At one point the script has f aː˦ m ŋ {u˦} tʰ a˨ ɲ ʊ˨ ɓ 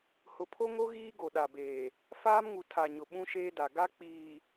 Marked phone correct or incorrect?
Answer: incorrect